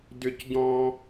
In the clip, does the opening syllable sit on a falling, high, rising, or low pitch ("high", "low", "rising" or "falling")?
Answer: high